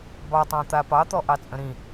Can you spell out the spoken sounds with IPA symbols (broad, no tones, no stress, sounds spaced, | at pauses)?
b ɑ tˤ ɑ̃ t̪ a p ɑ t̪ ɔ ʔ ɑ t͡sʼ ə̃ ɾ ĩ